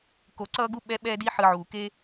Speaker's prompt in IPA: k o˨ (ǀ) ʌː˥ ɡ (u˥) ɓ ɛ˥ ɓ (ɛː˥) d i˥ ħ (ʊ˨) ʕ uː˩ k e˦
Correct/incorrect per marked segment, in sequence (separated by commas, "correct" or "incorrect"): correct, correct, correct, incorrect